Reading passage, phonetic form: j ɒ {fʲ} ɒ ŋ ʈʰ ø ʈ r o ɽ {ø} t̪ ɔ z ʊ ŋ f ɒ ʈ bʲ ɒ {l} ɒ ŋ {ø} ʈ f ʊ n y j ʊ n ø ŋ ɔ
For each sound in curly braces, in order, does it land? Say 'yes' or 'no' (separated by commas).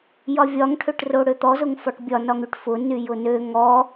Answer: no, yes, no, no